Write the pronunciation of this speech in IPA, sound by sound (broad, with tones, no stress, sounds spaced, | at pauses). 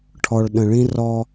ʈʰ ɔ˨ ɭ ɗ ə̃˨ ɭ ĩ˦ r ɔ˦